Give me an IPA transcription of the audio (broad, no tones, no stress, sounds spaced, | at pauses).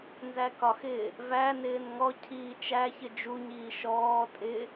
n z æ k ɒ x ɪː | v æ n ɪː n ŋ ɔ cʰ iː t͡ʃ æ ç ɪ d͡ʒ u ɲ iː ʃ ɔː tʼ ɪ